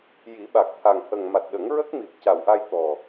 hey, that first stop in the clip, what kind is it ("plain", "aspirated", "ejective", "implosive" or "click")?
implosive